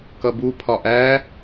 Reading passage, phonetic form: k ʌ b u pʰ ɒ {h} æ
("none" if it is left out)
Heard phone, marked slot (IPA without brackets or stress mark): ʔ